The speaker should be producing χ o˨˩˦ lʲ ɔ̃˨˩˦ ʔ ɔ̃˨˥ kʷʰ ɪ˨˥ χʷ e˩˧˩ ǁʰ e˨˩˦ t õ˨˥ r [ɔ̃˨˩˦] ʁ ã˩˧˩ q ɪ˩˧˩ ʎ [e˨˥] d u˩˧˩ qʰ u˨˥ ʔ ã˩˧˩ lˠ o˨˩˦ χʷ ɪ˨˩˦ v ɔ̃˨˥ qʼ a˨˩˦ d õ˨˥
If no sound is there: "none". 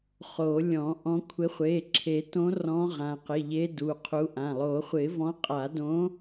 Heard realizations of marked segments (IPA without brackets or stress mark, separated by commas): ɔ̃˨˥, e˨˥